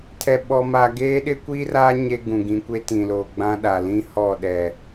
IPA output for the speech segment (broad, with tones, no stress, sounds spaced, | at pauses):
tʰ ɛ˨ ɓ ɔ˨ m a˨ ɡ eː˦ ɗ ɪ˦ kʷ iː˦ r aː˦ ɲ e˦ ɡ ũ˨ ɡ ĩ˨˦ kʷ e˦ t ĩ˨ l oː˨ ɡ͡b ã˦ ɗ a˨ l ĩ˦ h ɔ˦˨ ɗ ɛ˨